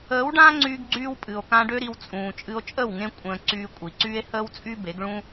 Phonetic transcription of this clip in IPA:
əː˨˦ w ɖ ã˦ ŋ͡ǀ yː˧ ɡ ɡ͡ǀ yː˧ w pʼ ɨ˨ o̯ k ã˧ ɖ ø˦ ɾ i˧ w t͡sʼ ũː˨ t͡ʃʼ ɨ˧ o̯ t͡ʃʼ ə˦˨ w ŋ ẽ˦ kʷʼ ə̃ː˧ ǀ yː˧ kʷʼ i˨ ǀ yː˦ e̯ h əː˦ w t͡sʼ y˦ b e˨˦ ɡ ɭ ũ˦

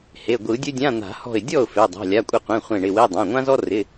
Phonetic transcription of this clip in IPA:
h e˩˧˩ ɡʷ ɯ˨˩˦ dʲ ɵ˥ dʲ ã˧˥˧ n̪ a̤˨˩˦ h ɔ̤˧˩ ɪ̯ dʲ ɔ˥˩ ʊ̯ f e˩˧˩ dˤ a̤˩˧˩ lʲ a˩˧˩ kʷʼ ɪ˧˩ qʷ ẽ˩˧˩ χʷ ẽ˧˩ ɳ ɪ˩˧˩ w e˧˥˧ dˤ ã˩˧˩ ŋʷ ã˥ z ɔ˥ r ɪ˩˧˩

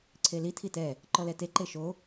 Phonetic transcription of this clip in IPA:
ǀʰ e l i tʰ i t ɛ | ǃ ɔ l ɛ t e ǃ e ʃ o

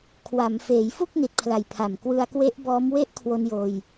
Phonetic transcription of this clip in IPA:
kʰ w a˩˦ m f eː˩˦ j f u˥˩ k̚ n i˨˩ t̚ pʰ l a˨˩ j pʰ a˨˩ m k w ɯ˧ a̯ k w e˦˥ ʔ b ɔː˦˥ m w e˦˥ ʔ kʰ w o˧ n j oː˧ j

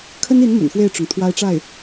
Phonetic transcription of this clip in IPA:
kʰ ə˥ n i˧˥ n m ə̰˨˩ n x w e˥˩ ɪ̯ ʈ͡ʂ ʊ˩ ŋ t̪ʰ w a˥ ɪ̯ ʈ͡ʂ a˥˩ ɪ̯

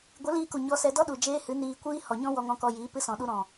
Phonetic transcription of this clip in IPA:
ɡʷ ɨ˨˦ l iː˧ k u˨ ɲ ɔ˧ s ɛ˧ d ɔ˦ ɗ u˨ d͡ʒ eː˧ h ɨ˨˦ n iː˧ kʷ iː˦ h ɔ˨ ɲ ɔ̃˦ w ɔ˧ ŋ ɔ̃˧ k ɔ˧ j iː˨˦ p ɨ˦ s ɔ̃˨˦ ɗ u˦ ɾ ɔ̃˨

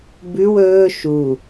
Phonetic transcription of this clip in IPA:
b ʉ w ɵː ʃ u

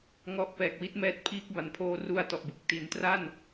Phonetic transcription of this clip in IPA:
ŋ ɔ˦˥ ʔ p ɛː˨˩ k̚ w i˦˥ t̚ m ɛː˦˥ t̚ pʰ iː˦˥ k̚ b a˨˩ n pʰ oː˧ r u˧ a̯ t ɔ˨˩ ʔ b ɯ˨˩ k̚ t i˩˦ n t r a˥˩ n

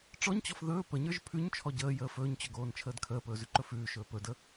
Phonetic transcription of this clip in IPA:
ʈ͡ʂ ɔ ɲ t͡ɕ ɔ f ð ɵː p ə ɲ ə˞ ʒ pʰ ʉ ɲ t͡ʃʰ ɔ ɟ əː j əː f ɵː ɲ t͡ɕ ɵ ɡ oː n t͡ʃʰ əː d kʰ əː p ɵː z ʉ ǃ ɵ f ʉː ʃ ɵː p ɵ d ə

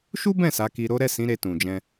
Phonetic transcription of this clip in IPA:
ʃ u˦ b ɛ̃˦˨ s a˨˦ k i˧ ɾ o˦ ɾ ɛ˦˨ s ĩ˨˦ ɾ e˧ t ũ˨ d͡ʒ ɛ̃˧

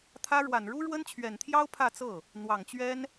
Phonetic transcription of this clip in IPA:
t̪ʰ ä˥ ɻ w a˨˩ n ɻ u˥ ɻ w ə˥ n t͡ɕʰ ɥ ɛ˨˩ n t̪ʰ j ɑ˥ ʊ̯ pʰ ä˥˧ t͡s ɤ˥˩ | n̪ w ɑ˨˩ ŋ t͡ɕ ɥ ɛ˥ n

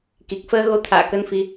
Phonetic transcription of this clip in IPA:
k i˨˩ k̚ f əː˧ ɣ o˨˦ t̪ʰ a̰ː˧˨ k ə˧ n f i˧

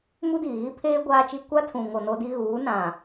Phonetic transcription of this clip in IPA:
m u˦ d iː˨ ɣ i˦ pʰ eː˦ ɡʷ aː˦ t͡ʃ i˦ kʷ a˦ tʰ ũ˨ ŋ o˨ n o˦ d i˦ ɣ uː˨˦ n ã˨

